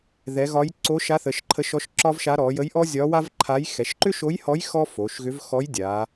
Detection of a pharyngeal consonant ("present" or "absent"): absent